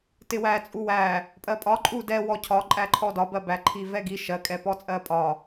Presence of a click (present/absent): present